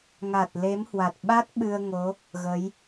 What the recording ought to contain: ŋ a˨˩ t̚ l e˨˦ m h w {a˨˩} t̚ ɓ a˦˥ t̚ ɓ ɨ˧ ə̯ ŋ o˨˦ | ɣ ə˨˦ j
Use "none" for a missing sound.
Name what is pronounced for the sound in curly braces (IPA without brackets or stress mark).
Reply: a˨˩